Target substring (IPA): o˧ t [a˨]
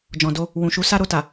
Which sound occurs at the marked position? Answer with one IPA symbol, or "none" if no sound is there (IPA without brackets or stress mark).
a˨